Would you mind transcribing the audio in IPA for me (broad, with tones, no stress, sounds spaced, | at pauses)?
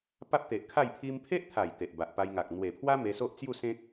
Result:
p a˦ p̚ t̪ e˨ ʔ kʰ a˥˧ j pʰ i˧ m pʰ e˦ ʔ t̪ʰ a˨˩ j t̪ e˨ ʔ b a˨ ʔ p a˧ j ŋ a˨ k̚ n̪ w e˨˩ pʰ w a˦ m e˧ s o˦ ʔ t͡s j u˥˧ s ẽ˦ k̚